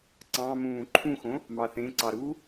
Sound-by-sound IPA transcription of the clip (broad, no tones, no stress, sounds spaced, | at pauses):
ǀ ɑ̃ m ũː ǃʰ ũ x õ | m ɑ θ ẽ ǀ ɑ ɾ u